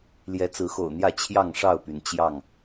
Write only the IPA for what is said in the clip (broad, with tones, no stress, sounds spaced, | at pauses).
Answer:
l j ɛ˨˦ t͡s ɹ̩˨˦ x o̰˨˩ ʊ̯ n̪ j ä˥˨ t͡ɕʰ j ɑ˥˨ ŋ ʂ ɑ˥˨ ʊ̯ p y˩ n t͡ɕ j ɑ˥˨ ŋ